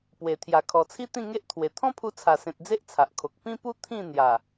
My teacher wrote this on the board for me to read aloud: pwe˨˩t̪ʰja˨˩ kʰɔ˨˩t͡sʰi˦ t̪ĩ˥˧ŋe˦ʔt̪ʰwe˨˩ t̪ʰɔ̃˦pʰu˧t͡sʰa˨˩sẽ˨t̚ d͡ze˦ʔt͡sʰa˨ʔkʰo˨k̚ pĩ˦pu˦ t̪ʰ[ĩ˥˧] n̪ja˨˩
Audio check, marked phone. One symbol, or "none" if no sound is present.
ĩ˥˧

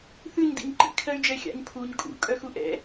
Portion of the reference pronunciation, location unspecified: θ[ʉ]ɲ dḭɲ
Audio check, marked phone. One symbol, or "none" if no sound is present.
ʉ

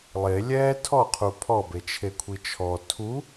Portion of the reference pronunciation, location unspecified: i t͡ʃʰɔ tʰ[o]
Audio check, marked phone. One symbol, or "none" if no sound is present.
u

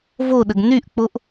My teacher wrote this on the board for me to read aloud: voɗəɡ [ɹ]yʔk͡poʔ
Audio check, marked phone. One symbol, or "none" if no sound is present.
n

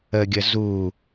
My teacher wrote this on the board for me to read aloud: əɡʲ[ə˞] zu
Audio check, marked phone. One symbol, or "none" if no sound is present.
ə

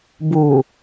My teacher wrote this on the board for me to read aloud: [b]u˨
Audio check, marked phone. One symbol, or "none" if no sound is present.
b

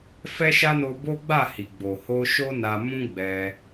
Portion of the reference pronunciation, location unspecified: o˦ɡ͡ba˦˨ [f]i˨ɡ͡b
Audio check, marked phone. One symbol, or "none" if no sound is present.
h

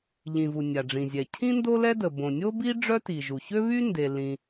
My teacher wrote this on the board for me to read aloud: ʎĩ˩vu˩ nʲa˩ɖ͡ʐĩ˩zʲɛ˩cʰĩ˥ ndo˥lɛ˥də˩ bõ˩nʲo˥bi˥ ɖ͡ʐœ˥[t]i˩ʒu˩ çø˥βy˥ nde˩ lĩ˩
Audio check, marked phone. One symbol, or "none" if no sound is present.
t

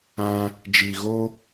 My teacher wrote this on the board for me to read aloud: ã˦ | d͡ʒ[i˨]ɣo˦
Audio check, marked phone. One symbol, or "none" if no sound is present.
i˨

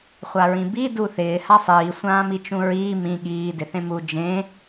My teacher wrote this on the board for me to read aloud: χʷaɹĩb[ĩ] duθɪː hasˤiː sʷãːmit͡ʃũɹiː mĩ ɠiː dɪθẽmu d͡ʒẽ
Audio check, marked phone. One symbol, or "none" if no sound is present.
i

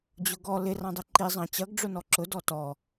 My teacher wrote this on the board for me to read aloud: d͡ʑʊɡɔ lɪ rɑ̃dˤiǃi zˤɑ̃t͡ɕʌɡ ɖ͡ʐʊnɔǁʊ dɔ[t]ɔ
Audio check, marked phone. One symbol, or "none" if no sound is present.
t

